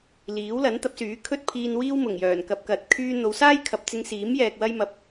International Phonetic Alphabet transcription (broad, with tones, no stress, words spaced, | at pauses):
liː˨˥w lɐ˨˥nt̪ɐ˨˥p̚syː˨˥ kʰɵ˥t̚pʰiː˧nwiː˥wmʊ˨˩ŋ jœː˨˩nkɐ˧p̚kɐ˨˥t̚ kʰyː˧n̪o˨˧wsaː˥jkʰɐ˨p̚ t͡sɪ˧ŋsiː˨˥mjɛː˨k̚ wɐ˧jmɐ˨p̚